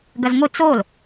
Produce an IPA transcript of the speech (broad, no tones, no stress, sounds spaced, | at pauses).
ɡ ɐ z ŋʷ ɨ t͡s o l